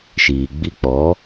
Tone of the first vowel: low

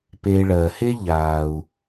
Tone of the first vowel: low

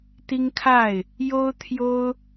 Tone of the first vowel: high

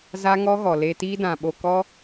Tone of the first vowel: high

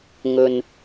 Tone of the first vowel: low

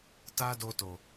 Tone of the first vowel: high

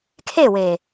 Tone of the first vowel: falling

